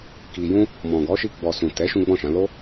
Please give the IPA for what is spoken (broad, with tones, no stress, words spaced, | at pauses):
ki˨jũ˧ | mɔ̃˨ɡɔ˨˦ʃi˧ ɡ͡bɔ˨ sũ˨ tɛ˨˦ ʃũ˦ɡ͡bɔ̃˦˨ʃã˨˦ lo˦